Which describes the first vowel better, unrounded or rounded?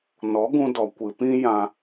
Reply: rounded